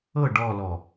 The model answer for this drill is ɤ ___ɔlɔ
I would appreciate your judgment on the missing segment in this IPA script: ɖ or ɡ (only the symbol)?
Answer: ɖ